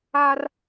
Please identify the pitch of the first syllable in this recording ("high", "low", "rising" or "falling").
high